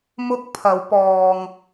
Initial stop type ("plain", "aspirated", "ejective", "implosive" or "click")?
plain